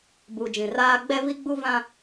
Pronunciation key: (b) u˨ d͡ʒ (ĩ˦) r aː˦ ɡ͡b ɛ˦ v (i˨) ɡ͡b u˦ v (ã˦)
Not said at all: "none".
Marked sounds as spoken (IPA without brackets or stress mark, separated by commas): b, ĩ˨, i˦, ã˦